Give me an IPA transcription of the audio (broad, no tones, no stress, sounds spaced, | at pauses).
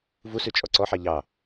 v u s ʉ t͡ʃʼ ɔ ǀ ɔ ħ ɑ ʎ ɑ